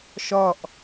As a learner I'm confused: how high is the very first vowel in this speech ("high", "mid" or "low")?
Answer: low